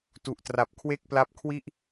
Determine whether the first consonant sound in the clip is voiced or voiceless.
voiceless